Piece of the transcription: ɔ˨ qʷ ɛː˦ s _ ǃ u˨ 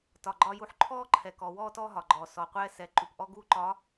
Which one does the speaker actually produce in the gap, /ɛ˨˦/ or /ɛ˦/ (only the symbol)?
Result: ɛ˨˦